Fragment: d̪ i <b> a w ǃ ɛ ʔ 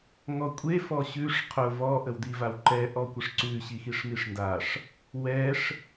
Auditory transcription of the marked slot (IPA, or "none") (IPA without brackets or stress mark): v